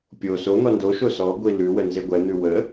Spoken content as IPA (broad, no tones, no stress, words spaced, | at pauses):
pʲo so n̪ɔndoʃo sɔ ɡʷilʉwə nzeɡʷɛn̪ʉ wə